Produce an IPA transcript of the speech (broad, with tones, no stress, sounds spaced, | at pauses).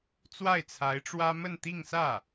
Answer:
t͡s w a˥˩ ɪ̯ t͡sʰ a˧˥ ɪ̯ ʈ͡ʂ w ä˥ m ə˥˧ n t̪ i˥˧ ŋ s ä˥˩